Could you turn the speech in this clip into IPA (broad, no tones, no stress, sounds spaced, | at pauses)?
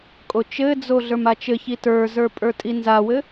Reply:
kʼ o t͡ʃ ɘ d͡z o ɮ ə˞ m a t͡ʃ ɘ ç i t ə˞ z ə˞ pʼ ə˞ tʼ i n z a w ɘ